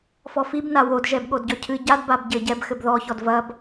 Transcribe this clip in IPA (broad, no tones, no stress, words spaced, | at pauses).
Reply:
fɔfib nawod ʒɛbɠodɟɔcʰɨ ɟad babɟɘ ɟɛb xɘbðɔ çɔdvɐb